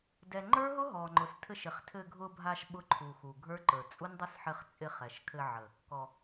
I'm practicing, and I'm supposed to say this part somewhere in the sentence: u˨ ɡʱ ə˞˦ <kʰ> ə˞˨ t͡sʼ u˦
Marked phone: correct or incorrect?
incorrect